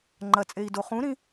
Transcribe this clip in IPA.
ŋ͡ǃ ɐ t͡sʼ e i̯ d o χ ũ ɾ ĩ

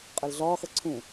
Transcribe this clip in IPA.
qʼ ɐ l ɮ ɒː x ɐ ǀʰ ũ

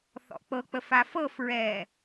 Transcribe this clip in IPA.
θ ɔ̰ k͡p ɤ k͡p ə f a f ɤ f ɹ ɛː

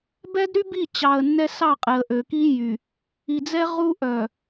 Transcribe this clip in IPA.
b ɛ˦ d ɾ y˦ b i˦˨ t͡ɕ ɑ˨ ə̯ nː ɛ˦ s ɑ˦˨ qʼ e˨ ə̯ ʔ ø˨ k i˦ j y˨ | i˨ d͡z ɛ˦ ʁ u˦ ʔ œ˨

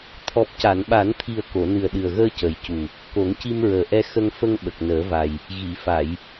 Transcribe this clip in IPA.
t̪ʰ ɔ˨˩ p̚ c a˨˩˨ n ɓ a˨˩˦ n t̪ʰ i˨˩ ə̯ k o˨˩˨ n ɨ˨˩ ə̯ ɗ ɨ˨˩ ə̯ ɣ əː˧ c ə˨˩ j c u˨˩ | k o˨˩˦ ŋ c i˧ m ɹ əː˨˩ ʔ ɛ˧ x ə˧ ŋ f ə˧ ŋ ɓ ə˨˩ k̚ n əː˨˩˦ v a˨˩ j | ɣ i˨˩˨ f a˨˩˨ j

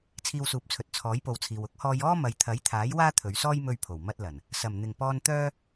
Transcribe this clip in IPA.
t͡sʰ iː˧ w s uː˨˥ p̚ t͡sʰ ɵ˨ t̚ t͡sʰ ɔː˨˥ j p o˨ w t͡sʰ iː˨ w ʊ˥ k̚ h ɔː˧ j ɔː˥ m ɐ˨˧ j t̪ʰ ɐ˨˥ j t̪ʰ aː˨˥ j w aː˥ t̪ʰ ɵ˨˧ ɥ s ɔː˥ j m ɵ˧ ɥ pʰ o˨˩ w m ɐ˧ t̚ l ɐ˨˩ n | s ɐ˨˩ m n̪ ɪ˨˩ ŋ p ɔː˧ n t̪ œː˥

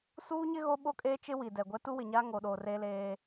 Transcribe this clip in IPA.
s uː˦ ɲ ɪ˦ ɣ o˦ ɓ o˦ kʼ eː˦ t͡ʃ ɪ˦ w i˨ d ɛ˨ ɡʷ ɛ˦ t u˦ w ɪ˨ ɲ a˦ ŋ o˨ ɗ o˨ r e˦ l eː˦

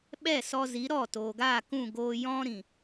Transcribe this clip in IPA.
ɓ ɛ˦˨ s ɔ˧ z i˨˦ ɾ ɔ˦˨ t oː˨ ɡ aː˦˨ k ũ˦˨ ɡ oː˧ j ɔ̃˦ ɾ ĩ˨

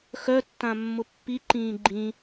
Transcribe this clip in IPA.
x œ tː ã mː ʊ pː i ǃ ĩː ɡ͡ǃ ĩ

